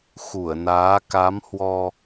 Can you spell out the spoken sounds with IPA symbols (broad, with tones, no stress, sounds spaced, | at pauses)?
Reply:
x u˧˩ ə̯ n aː˨˦ k a˨˦ m h w ɔ˧